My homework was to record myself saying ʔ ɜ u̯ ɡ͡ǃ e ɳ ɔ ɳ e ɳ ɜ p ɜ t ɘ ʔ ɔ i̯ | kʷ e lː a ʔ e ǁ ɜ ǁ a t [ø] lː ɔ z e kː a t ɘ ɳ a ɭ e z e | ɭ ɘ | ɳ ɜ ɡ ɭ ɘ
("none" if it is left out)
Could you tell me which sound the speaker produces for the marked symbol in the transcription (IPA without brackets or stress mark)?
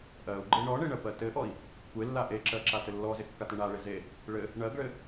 ɘ